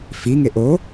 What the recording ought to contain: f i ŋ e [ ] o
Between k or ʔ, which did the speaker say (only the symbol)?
ʔ